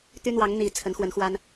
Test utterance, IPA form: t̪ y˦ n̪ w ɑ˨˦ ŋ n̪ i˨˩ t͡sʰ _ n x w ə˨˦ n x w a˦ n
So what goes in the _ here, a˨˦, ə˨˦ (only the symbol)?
ə˨˦